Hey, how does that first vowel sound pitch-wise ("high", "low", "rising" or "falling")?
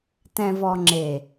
low